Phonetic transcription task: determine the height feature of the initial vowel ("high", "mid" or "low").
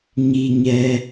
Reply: high